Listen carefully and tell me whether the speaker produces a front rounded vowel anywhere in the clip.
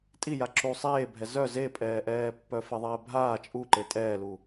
yes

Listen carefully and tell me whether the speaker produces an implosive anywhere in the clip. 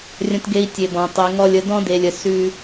no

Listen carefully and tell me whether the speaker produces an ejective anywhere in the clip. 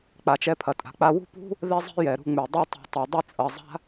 yes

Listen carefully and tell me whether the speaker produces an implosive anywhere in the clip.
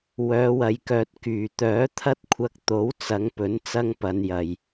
no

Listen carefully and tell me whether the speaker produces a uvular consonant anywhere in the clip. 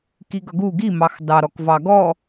no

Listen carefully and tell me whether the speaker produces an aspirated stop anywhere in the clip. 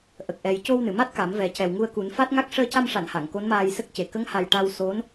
no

